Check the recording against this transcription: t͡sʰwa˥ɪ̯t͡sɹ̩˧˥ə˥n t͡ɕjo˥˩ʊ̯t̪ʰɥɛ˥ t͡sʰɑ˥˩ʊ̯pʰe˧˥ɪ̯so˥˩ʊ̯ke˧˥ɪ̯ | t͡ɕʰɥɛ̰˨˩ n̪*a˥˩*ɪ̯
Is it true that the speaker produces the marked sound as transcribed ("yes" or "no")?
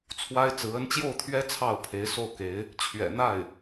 yes